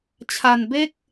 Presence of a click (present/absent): absent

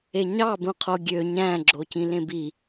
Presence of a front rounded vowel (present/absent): present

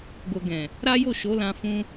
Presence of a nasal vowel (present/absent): present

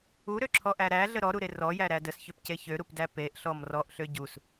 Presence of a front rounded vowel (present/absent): present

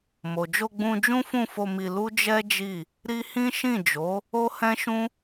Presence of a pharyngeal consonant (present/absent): absent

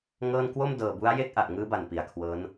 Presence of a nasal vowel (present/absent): absent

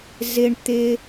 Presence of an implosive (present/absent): absent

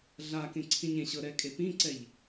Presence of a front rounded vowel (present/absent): absent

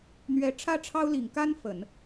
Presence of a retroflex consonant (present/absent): present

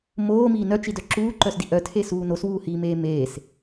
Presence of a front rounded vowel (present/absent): present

